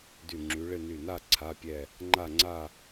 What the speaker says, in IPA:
dy˧˩ŋ͡ǁy˨˦ ɭɪ˥˧ ny˧˩na˥˧ ǀʰa˧˥˧pʲɛ˥˧ | ŋ͡ǃa˥˧ŋ͡ǀa˥˧

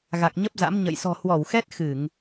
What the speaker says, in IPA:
ɣa˨˩k̚ ɲə˦˥p̚za̰˧˥mɲə̰˧˨j sɔ̤˨˩hwɔ˧˩wxɛ˦˥t̚ xɨ˧˩˨ŋ

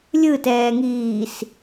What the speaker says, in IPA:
lʲɯtɛːŋiːs

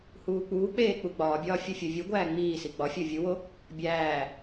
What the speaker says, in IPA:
huːk͡puːk͡peː k͡puɡ͡bɒːbʲɒː fʲufʲovʲuɡʷæː ŋ͡miːsi ɡ͡bɒfʲo vʲuwo | bʲæː

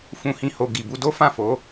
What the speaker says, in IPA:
fũ˨hĩ˨ho˨ ɡi˨bu˧do˦fã˦˨ fo˨˦

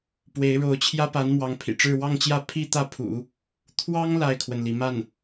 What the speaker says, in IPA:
pwe˧˥ɪ̯ɻo˧˥ʊ̯t͡ɕʰjä˥pa˧˥n mwɑ˧˥ŋpʰḭ˨˩ʈ͡ʂɻ̩˥˧ wɑ˥˧ŋt͡ɕjä˥˧ pʰi˥˧t̪ä˥˩pʰṵ˨˩˦ | t̪ʰwɑ˥ŋ la˥˩ɪ̯kʰwə˩nli˩ ma˥˩n

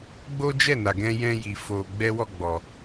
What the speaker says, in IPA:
ɡ͡bo˦d͡ʒɛ˦˨na˨ɡɛ̃˧ jɛ̃˧ji˨ fo˧ ɡ͡bɛ˦wɔ˦˨ɡ͡bɔ˨

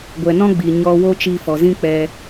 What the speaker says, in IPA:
ɡʷɛ˨nɔ̃˦ɡ͡bi˨ ɲɔ˧ wo˦ t͡ʃiː˧ fɔ˨zĩ˦k͡pɛ˧

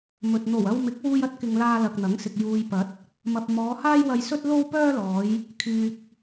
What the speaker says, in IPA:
mɵ˨t̚ n̪o˨˩wɐ˧wmɪ˨˥k̚ wuː˧jɐ˥t̚kɪ˨ŋ laː˧lɐ˨k̚n̪ɐ˨˥ŋsɪ˨k̚ juː˨jpɐ˨˥t̚ | mɐ˨p̚ mɔː˨˧haː˥jwɐ˧jsɵ˥t̚ lo˥wpœː˥lɔː˨˧j | kʰyː˨k̚

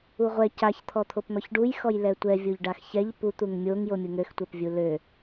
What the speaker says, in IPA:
uʁʷɛ caç t̪ʰɔt̪ʰopn̪ɔçɖuj xɔjlɛtʷɛ vʲoʎɖaxçɛʎ pu t̪uŋmʲoŋ jomʲuŋøx tʷɛpvʲulø

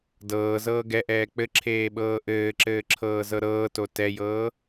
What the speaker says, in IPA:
dɤːzɤː ɡɛʔɛː k͡pɘǁʰeːɓɤː ʔɘːǁɘːǁʰɤːzɤ ɾɤːto tɛjɤː

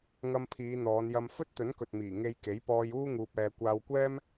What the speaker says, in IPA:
ŋɐ˧mpʰiː˨˧ n̪ɔː˨˧njɐ˧m fɵ˥t̚t̪ɵ˨˥nkɵ˨t̚miː˨˩ ŋe˧jke˨˥jpɔː˧juː˥ ŋuː˧p̚ɛː˧ kʷaː˧wkʷɛː˥m

